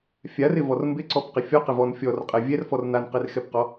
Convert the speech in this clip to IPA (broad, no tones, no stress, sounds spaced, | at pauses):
fʲ a r ɪ v ɔ r m b ɪ ǀ ɔ p q ɪ fʲ ɔ q ɪ v ɔ n fʲ ɔ r qʼ ɛ vʲ ɛ r f ɔ r n a n q ɪ r x ɛ p q ɔ